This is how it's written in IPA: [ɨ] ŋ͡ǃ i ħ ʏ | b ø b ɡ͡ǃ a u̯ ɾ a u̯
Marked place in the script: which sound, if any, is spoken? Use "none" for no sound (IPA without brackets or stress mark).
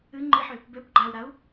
ɨ